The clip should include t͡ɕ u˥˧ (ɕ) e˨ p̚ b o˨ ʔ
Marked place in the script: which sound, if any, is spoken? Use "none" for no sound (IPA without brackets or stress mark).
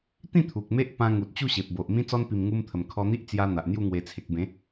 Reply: ɕ